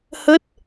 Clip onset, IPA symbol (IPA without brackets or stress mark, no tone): h